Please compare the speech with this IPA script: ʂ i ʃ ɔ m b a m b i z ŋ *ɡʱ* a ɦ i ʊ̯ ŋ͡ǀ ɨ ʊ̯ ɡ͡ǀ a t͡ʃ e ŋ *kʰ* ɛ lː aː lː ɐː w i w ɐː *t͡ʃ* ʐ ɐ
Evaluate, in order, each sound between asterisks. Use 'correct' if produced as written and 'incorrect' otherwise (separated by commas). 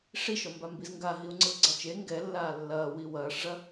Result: incorrect, incorrect, incorrect